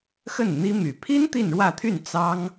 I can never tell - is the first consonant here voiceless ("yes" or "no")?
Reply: yes